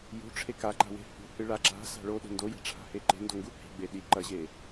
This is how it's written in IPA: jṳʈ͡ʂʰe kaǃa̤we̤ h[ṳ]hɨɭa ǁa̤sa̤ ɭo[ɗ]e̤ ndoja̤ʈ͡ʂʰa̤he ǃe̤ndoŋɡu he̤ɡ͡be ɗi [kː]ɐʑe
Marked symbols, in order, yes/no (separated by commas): yes, yes, no